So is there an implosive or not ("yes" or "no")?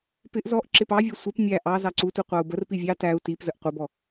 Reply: no